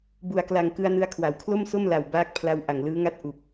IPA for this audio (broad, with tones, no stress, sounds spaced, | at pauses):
b u˨˩ a̯ k l a˨˩ ŋ k ɯ˧ a̯ n ɯ˧ a̯ kʰ w a˩˦ w kʰ l o˥˩ m s o˥˩ m l a˨˩ w b aː˦˥ k̚ pʰ l a˧ w ʔ a˨˩ ŋ l ɯː˦˥ ŋ a˥˩ t̚ ʔ u˨˩ k̚